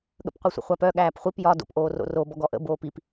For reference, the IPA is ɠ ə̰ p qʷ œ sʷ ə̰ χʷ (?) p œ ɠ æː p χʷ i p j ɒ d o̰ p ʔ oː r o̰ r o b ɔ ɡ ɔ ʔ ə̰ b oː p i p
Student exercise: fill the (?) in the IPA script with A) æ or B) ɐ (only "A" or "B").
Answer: A